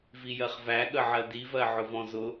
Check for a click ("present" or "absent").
absent